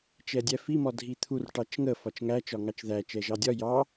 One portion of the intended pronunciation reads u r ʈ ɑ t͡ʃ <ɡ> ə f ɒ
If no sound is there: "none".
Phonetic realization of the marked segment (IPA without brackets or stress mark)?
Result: ŋ